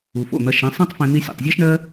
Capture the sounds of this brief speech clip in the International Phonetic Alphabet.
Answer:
u˨ f o̰˦˨ n̪ ɐ˧ ʃ ẽ˨˦ sˤ ẽ˦ tˤ f ẽ˧ n̪ i˧ sʲ o̰˨ tˤ zʲ ɑ˦ ʃ ɳ ɜ˦

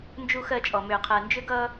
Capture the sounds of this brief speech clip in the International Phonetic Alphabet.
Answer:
n d͡ʒ u˦ x ɜ˦ t͡ʃʼ ɔ˨ m ʏː˨ qʰ ɜ˨ n d͡ʒ ʏ˦ ɡ ʌː˦

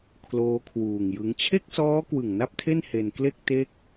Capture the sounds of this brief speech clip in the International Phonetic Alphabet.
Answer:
kʰ l oː˦˥ kʰ w uː˨˩ ŋ j ɯ˦˥ ŋ t͡ɕʰ e˥˩ k̚ s ɔː˦˥ k w ɯ˨˩ ŋ n a˥˩ p̚ tʰ e˥˩ n h e˧ n k l e˥˩ k̚ t e˦˥ k̚

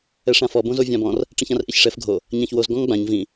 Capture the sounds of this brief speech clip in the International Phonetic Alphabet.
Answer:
ɛ ʂ ã f ɔ b õ z o vʲ ã b ɔ̃ r | ʈ͡ʂ ĩ ç ã r ʔ i ç ʂ ɛ f ɡʱ o | ɲ ã ç w o z ɡ ɔ̃ ŋ ɡ͡b ã ɲ v ĩ

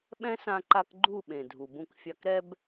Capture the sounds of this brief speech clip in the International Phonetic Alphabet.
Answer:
ɓ ɛ̃˦ s ã˧ ǃ a˧ k ɡ͡ǃ u˦˨ ɓ ẽ˨ dʱ u˨ b ũ˧ k fʲ a˧ k ɾ ɛ˧ b

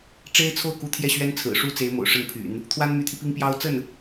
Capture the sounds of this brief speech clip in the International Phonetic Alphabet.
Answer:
ʈ͡ʂ e˥ ɪ̯ t͡sʰ o˥˩ ʊ̯ k u˧˥ t̪ʰ j ɛ˥˩ ɕ ɥ ɛ˥ n t͡sʰ ɹ̩˨˩ ʂ u˥ t͡s e˧˥ ɪ̯ m o̰˨˩ ʊ̯ ʂ ə˥˩ n pʰ y̰˨˩˦ n | t̪ʰ w a˥ n m y˧˥ t̪ʰ i˧ p i˥ ŋ p j ɑ˥ ʊ̯ t͡s ə˥˩ n

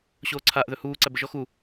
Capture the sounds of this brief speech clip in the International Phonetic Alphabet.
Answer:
ɕ oː ǀʰ a ʔ ð ɵ h uː ǀ æ b ɘ ʒ ɔ x u

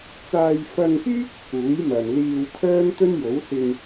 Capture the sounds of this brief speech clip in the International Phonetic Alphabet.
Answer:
t͡s aː˧ j f ɐ˧ ŋ p yː˥ k̚ h uː˨˥ j m ɐ˨ n l iː˧ w kʰ œː˥ m t̪ ɵ˥ n j o˨˥ w s ɪ˧ ŋ

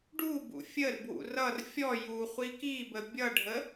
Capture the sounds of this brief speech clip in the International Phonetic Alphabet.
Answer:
ɖ u b ṵ fʲ ə r b w ṵ r ʌ r fʲ ɔ j u χʷ i k i b ə bʲ ʌ ɖʱ ə

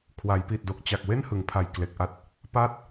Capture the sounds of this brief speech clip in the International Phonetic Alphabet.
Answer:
kʰ w a˩˦ j p i˨˩ t̚ d o˨˩ k̚ t͡ɕ a˨˩ k̚ w e˥˩ n h ɯ˩˦ ŋ pʰ a˨˩ j k l e˨˩ k̚ ʔ a˦˥ t̚ | p a˥˩ t̚

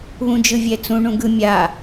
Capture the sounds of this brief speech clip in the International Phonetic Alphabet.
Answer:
β ũ d͡ʒ ɯ vʲ ɛ t͡s ũ ɳ ũ ɡ ɯ mʲ a

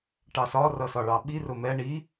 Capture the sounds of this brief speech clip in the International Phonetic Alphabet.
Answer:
ʈ ɑ s ɒ r ʌ s ɒ ɭ ɑ ɓ i r ʊ m ɛ ɳ i

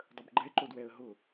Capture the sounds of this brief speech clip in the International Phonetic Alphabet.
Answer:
dˤ ə b ɡ͡ǃ ɛ ǃ o d w ɛ ə̯ ɦ ʊ

